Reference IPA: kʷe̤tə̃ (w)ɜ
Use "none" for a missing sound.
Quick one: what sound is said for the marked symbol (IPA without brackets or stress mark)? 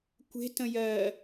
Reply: j